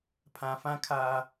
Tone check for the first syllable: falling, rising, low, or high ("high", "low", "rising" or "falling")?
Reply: low